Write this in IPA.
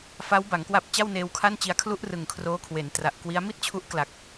f a˦˥ w b a˩˦ ŋ k w a˦˥ p̚ t͡ɕ a˥˩ w n eː˧ w kʰ a˥˩ n t͡ɕ i˧ a̯ kʰ l u˥˩ ʔ r ɯ˨˩ ŋ kʰ r oː˦˥ kʰ w e˩˦ n t r a˨˩ ʔ k w i˦˥ a̯ m i˥˩ t̚ t͡ɕʰ u˦˥ ʔ k l a˨˩ k̚

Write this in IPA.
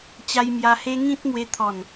t͡ɕ a˧ j m j a˧ h e˦ ŋ ĩ˦ t̚ m w e˧ t̪ʰ ɔ˨˩ n

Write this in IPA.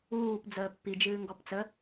uː p d͡z əː pː i d͡ʒ ɨː ŋ ɡ ɔ p t͡s ə

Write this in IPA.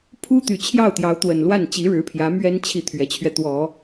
pʰ u˥ t̪ y˨˩ t͡ɕʰ j ɑ˥˩ ʊ̯ t̪ j ɑ˧˥ ʊ̯ t̪ w ə˨˩ n l w a˥˩ n t͡ɕ i˧˥ ɻ ɻ̩˧˥ pʰ j ä˧˥ m ɥ ɛ˥ n t͡ɕʰ i˥˩ t̪ʰ ɥ ɛ˧˥ t͡ɕʰ ɥ ɛ˧ t̪ w ɔ˨˩˦

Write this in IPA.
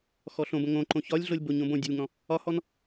x ɔ ɬ õ b ə̃ ŋ õ ǃ õ ç ɒ lʲ ɮ o lʲ b o ɲ õ b õ dʲ ə lʲ ŋ ɔ̃ | ɒ h ɔ n

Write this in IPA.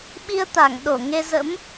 ɓ i˧ ə̯ t̪ a˧˩ ŋ ɗ o˧˩ ŋ e˧ z ə̰˧˥ m

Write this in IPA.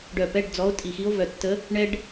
ɖ œ˧˩ p ɛ˧˥˧ ɖ d͡z ɔ˧˥ o̯ tʼ i˧˩ x i˧˥ o̯ v œ˧˩ tː ə˧˥ | ɳ ɛ˧ ɖ

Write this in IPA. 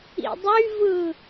ḭ dˤ y v ɯ

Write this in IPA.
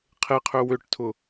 qʰ e qʰ ø w ø ʈ tʰ ʊ

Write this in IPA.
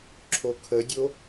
ǁʰ o kʰ ə dʲ o

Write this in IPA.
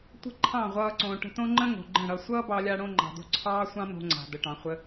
tʷ ə̤˦ ǃʰ ɑ̃˦˨ ʁʷ ʌː˧ ǀ õː˨ ʈ ə̤˧ t õ˦ ŋ͡ǃ ə̃˦ ŋ o̤˨ ɡ͡ǃ ə̃˦˨ ɽ ʌ˧ sʷ ʌː˦ b ɑ˧ lʲ a˧ ɽ õ˧ ŋ͡ǃ ɑ̤˨ d o̤˧ ǀʰ ɑː˦ sʷ ɑ̃˦ n o̤˧ ŋ͡ǀ a̤˨ d ə˨ ʈ ɑ̃˨ χʷ ə˧

